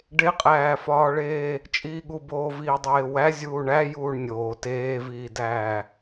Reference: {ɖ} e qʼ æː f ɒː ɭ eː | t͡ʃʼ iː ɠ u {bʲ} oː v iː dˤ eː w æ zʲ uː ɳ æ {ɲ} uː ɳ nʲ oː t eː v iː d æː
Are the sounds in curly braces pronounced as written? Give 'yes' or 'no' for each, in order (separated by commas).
yes, no, no